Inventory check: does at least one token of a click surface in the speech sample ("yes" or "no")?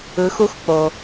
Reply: no